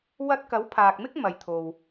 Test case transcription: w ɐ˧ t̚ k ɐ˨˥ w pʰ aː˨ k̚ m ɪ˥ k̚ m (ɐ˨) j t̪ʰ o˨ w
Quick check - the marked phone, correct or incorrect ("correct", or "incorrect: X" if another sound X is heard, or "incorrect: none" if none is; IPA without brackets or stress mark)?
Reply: correct